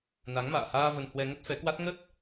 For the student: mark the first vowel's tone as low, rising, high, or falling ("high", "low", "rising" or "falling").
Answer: rising